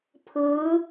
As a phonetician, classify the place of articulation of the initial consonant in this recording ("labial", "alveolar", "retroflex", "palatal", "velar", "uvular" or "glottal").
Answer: labial